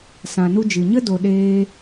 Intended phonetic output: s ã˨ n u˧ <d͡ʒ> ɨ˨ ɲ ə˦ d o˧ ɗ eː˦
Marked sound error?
no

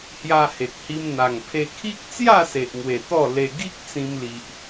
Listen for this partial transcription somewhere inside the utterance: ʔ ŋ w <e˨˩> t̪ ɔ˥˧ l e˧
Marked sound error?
no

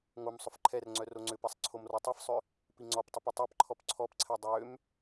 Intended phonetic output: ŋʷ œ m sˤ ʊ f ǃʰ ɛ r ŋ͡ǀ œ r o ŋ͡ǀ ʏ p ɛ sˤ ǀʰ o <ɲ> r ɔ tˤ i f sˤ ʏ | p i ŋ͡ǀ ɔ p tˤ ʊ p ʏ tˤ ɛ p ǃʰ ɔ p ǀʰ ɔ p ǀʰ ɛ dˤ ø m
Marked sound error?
yes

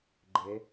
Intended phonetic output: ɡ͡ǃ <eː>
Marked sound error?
yes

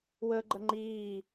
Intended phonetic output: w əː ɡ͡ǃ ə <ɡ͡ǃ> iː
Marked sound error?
yes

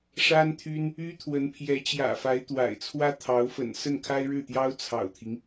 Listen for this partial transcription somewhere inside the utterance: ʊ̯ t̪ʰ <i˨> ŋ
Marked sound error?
yes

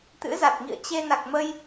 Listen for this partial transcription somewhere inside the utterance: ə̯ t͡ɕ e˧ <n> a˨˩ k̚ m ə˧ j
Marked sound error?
no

